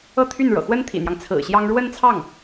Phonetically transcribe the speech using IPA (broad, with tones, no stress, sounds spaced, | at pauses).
ɤ˥˧ t̪ʰ y˥˩ n ɻ ɤ̰˨˩ x w ə˥ n t̪ʰ ḭ˨˩ n̪ j ɑ˦ ŋ t͡sʰ ɹ̩˨˩ ɕ j ɑ˥ ŋ ɻ w ə˥˧ n t͡sʰ ɑ˥˩ ŋ